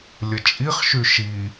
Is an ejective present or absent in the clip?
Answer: present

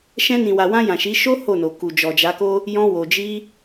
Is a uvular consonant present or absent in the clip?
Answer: absent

